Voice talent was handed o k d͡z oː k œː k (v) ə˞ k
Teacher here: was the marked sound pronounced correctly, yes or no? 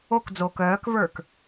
yes